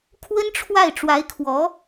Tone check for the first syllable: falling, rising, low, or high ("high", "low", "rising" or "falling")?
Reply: high